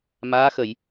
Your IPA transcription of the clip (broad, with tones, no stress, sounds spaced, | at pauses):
m aː˧˥ x ə˨˩˨ j